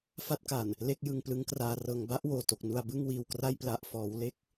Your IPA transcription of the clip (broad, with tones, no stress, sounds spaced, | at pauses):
f a˥˩ t̚ k a˨˩ n | l e˥˩ k̚ j ɯ˧ ŋ p l ɯ˦˥ ŋ k r aː˧ r ɤː˧ ŋ b a˦˥ ʔ w oː˨˩ t o˨˩ k̚ n u˧ a̯ b ɯ˥˩ ŋ w iː˧ w k r a˥˩ j p l a˥˩ ʔ f ɔː˦˥ w l e˥˩ k̚